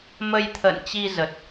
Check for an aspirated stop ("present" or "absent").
present